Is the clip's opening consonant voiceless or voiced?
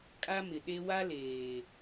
voiceless